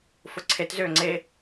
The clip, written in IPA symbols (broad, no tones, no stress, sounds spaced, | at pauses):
f ʊ ǀʰ e t z ʏː ŋ͡ǀ e